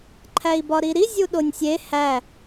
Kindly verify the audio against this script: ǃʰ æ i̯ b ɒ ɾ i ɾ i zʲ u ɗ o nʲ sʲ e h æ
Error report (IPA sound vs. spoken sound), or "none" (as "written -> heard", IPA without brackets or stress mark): none